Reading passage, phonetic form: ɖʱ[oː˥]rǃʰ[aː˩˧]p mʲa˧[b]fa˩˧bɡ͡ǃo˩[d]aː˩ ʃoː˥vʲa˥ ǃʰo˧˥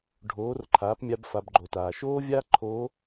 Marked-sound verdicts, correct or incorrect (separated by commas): incorrect, correct, correct, incorrect